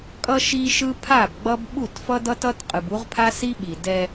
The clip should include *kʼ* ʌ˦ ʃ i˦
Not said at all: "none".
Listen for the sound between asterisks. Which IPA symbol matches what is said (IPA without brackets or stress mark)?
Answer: kʼ